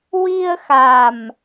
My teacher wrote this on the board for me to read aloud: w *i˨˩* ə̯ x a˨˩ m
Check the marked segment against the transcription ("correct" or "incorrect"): incorrect